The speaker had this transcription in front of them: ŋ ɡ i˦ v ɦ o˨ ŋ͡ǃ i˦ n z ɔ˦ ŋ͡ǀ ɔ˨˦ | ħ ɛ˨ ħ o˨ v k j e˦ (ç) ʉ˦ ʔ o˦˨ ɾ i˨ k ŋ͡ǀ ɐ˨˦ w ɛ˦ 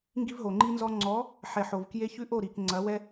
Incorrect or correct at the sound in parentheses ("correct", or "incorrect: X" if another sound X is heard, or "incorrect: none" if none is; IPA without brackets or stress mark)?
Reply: correct